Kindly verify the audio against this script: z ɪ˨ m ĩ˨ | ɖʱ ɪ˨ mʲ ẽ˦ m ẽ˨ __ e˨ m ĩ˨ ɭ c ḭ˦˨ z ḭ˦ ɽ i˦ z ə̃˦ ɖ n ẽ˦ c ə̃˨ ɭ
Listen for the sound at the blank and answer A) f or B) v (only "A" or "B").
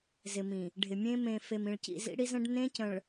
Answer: A